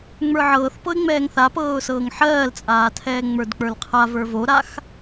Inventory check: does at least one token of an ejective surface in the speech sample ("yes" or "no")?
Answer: yes